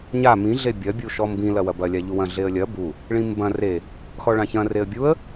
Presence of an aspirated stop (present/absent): absent